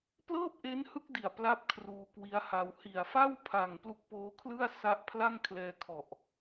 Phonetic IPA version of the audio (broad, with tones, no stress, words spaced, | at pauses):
plɤː˥˩p̚ʔe˦˥nhɯ˦˥k̚di˨˩a̯ pla˥˩p̚kʰruː˧kwi˦˥a̯ha˧w hi˨˩a̯fa˥˩w pʰa˨˩ŋ plu˦˥k̚poː˦˥kʰlɯ˥˩a̯sa˦˥ʔ pʰla˥˩ŋkʰlɛː˧kʰɔ˨˩ʔ